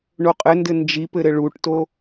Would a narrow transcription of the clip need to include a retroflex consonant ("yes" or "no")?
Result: yes